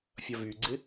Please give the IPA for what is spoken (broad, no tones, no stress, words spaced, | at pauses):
fʲɐvyɡ͡ǀɪ